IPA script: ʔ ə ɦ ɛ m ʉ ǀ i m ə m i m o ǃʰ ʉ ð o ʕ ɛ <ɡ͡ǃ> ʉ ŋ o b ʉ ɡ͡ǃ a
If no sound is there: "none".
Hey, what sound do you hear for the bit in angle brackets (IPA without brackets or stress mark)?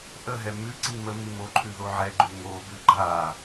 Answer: ɡ͡ǃ